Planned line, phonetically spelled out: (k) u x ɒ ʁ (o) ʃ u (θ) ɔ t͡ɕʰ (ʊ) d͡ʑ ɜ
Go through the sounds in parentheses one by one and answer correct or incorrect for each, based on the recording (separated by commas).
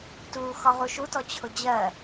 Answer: incorrect, incorrect, incorrect, correct